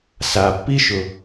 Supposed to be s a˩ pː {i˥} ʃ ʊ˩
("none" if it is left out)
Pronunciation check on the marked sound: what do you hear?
i˥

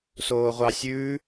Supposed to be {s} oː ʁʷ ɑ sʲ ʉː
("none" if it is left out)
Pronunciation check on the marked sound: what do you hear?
s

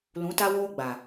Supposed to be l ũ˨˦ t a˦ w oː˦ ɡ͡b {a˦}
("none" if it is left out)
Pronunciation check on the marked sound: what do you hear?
a˨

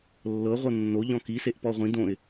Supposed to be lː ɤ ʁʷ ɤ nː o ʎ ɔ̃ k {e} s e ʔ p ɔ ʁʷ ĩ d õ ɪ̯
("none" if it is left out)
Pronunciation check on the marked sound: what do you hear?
i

